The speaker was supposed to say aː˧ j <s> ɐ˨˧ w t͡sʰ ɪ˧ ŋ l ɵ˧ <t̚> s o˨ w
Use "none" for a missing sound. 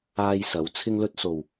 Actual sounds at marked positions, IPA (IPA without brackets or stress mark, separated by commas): s, t̚